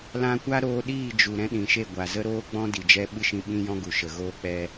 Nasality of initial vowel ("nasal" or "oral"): nasal